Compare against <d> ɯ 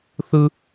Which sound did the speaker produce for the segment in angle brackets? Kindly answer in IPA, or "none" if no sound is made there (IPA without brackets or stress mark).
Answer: θ